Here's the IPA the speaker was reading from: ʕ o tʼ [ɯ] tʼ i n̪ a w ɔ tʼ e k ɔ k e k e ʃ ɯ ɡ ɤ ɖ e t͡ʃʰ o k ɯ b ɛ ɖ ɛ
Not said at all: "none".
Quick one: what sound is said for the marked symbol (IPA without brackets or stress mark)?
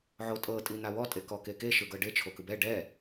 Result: ɤ